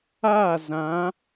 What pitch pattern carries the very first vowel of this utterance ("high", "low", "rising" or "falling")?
falling